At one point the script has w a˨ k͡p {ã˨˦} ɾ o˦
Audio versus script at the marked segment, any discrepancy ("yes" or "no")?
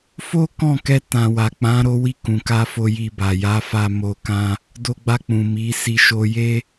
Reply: no